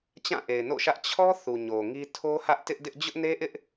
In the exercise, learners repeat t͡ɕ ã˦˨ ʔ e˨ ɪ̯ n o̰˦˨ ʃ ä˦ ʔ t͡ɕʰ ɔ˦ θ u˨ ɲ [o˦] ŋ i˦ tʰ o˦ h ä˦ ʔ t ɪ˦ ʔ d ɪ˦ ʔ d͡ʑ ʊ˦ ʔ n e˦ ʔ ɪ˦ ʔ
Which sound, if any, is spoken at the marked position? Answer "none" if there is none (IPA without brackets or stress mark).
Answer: o˨